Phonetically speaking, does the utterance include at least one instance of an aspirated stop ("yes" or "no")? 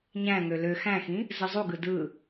no